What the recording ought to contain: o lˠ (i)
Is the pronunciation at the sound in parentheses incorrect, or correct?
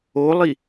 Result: correct